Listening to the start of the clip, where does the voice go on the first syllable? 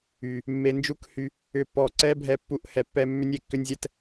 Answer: low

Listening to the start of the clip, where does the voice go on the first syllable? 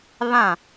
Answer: falling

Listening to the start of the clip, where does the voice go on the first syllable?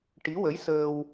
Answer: rising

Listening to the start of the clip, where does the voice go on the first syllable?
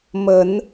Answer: rising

